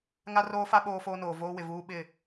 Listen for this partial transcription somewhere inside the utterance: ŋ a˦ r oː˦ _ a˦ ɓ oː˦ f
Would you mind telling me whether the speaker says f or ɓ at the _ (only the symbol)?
f